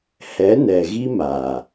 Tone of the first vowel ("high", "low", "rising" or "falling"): rising